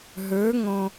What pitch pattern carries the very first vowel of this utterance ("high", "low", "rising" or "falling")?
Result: rising